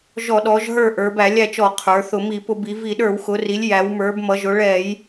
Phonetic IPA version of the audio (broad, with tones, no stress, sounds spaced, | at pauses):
ʒ ɔ˧˩˧ ɗ ɔ˩˧ ʒ ɦ ə˞˦˨ ʔ ə˞˩˧ b æ˧˩˧ lʲ æ˦˨ t͡ʃ ɔ˧˩˧ qʰ ə˞˩˧ θ ʊ˧˩˧ m i˧˩˧ p ʊ˧˩˧ b i˩˧ v i˧˩˧ ɗ ə˞˧˩˧ w x ʊ˩˧ r i˩˧ lʲ j æ˩˧ w m ə˞˩˧ b m ʌ˩˧ ʒ ʊ˩˧ ɭ ɛ˧˩˧ j